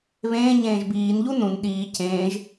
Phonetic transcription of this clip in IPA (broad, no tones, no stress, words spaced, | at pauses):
βẽːɲẽːʒ biːnʎu nũn ɗiː cẽːʒ